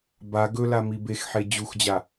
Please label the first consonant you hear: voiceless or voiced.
voiced